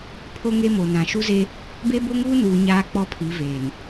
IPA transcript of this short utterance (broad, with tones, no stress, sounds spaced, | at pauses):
pʰ o˦ ŋ e˦ m o˨ n ã˨ ʃ u˦ z e˦ | b e˦ b o˦ ŋ uː˦ n uː˨ ɲ aː˦ k͡p ɔ˦ pʰ i˨˦ v eː˨ n